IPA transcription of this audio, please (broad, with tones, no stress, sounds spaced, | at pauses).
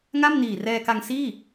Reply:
ŋ a˥˩ m n iː˨˩ r ɛː˧ k a˧ ŋ s iː˥˩